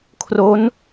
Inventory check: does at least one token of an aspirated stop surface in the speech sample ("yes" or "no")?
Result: yes